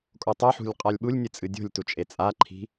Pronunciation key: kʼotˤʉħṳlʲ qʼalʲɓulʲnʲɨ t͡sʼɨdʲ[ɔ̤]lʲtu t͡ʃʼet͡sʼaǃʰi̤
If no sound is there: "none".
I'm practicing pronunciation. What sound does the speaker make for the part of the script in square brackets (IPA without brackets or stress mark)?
o̤